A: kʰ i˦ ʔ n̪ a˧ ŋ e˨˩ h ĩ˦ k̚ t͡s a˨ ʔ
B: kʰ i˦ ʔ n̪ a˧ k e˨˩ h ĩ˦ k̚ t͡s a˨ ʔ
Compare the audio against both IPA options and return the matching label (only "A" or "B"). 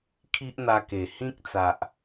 B